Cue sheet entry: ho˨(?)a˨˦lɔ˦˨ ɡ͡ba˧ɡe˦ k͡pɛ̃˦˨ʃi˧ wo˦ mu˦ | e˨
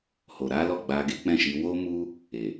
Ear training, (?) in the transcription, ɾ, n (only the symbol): ɾ